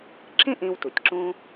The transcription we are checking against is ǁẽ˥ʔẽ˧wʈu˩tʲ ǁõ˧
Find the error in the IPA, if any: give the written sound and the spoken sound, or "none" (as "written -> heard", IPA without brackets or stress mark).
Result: ʈ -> t